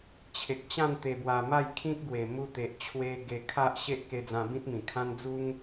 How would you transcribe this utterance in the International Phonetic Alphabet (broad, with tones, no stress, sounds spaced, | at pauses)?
t͡ɕʰ e˨ k̚ t͡ɕ ã˥˧ n t̪ e˨˩ b w a˨˩ m a˥˧ j kʰ ĩ˦ k̚ ɡ w e˨˩ m u˧ t̪ e˨ ʔ t͡ɕʰ w e˧ ɡ e˧ kʰ a˦ ʔ ɕ e˦ ʔ k e˧ d͡z ã˧ b ĩ˦ t̚ m ĩ˨˩ kʰ ã˦ n d͡z u˦ ŋ